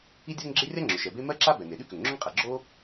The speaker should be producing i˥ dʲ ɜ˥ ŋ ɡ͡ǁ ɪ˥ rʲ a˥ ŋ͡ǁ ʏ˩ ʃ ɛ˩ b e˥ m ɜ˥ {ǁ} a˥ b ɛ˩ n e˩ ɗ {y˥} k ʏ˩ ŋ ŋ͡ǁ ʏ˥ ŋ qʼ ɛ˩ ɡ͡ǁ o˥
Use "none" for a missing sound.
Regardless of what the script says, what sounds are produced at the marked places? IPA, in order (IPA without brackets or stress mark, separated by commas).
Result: ǁ, y˥